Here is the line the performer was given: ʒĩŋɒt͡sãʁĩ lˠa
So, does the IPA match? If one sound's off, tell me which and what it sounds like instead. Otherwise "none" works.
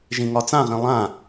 a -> ã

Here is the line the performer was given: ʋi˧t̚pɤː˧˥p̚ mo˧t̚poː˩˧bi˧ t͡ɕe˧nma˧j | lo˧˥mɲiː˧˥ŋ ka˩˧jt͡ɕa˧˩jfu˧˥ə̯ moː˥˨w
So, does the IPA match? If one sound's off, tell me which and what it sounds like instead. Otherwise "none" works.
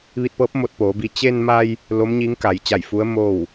none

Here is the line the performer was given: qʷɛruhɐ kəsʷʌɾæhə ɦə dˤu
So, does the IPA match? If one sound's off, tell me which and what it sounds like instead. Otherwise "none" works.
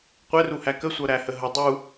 ɐ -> æ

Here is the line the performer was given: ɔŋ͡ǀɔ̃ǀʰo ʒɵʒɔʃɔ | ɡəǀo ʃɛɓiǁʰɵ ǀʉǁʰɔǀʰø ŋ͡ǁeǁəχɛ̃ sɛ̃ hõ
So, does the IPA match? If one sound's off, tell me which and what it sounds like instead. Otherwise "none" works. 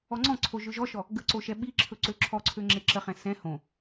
ʉ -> ø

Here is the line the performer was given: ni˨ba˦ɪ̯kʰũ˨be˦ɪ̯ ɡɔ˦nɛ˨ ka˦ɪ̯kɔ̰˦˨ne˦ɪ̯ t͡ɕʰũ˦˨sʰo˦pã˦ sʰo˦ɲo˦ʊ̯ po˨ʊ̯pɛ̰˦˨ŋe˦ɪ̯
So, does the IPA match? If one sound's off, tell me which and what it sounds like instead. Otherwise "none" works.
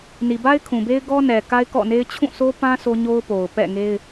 none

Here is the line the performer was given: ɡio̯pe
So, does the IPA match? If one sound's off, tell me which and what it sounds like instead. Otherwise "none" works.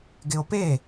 i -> ɪ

